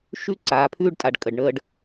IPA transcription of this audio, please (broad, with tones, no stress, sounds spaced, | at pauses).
ʃ ʉ˦ ǀ aː˨ pʰ ʉː˦ ɖ tʼ a˨ ɖ kʼ ə˨ ɖ ɳ əː˦ ɖ